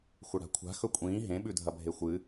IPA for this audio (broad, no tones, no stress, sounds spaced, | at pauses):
xʷ ɐ ɽ a̤ kʷʰ a̤ x ɵ kʷʼ ĩː ɦ ẽ ɓ ʉ dʱ ɐ bʱ e xʷ ɨ